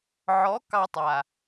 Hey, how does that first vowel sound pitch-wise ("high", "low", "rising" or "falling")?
rising